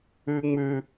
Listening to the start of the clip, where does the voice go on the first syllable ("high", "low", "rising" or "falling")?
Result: high